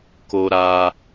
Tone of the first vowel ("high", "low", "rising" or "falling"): high